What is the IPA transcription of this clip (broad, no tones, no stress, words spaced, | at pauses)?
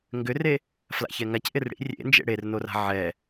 ŋɡʏre | fla̰çɛŋac ʔɪrɽḭ rʲḛnd͡ʒḛ ɽernora̤ ʕɛ